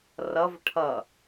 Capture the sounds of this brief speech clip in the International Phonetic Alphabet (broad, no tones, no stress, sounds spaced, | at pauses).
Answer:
r ʌ v ʈʰ ʌ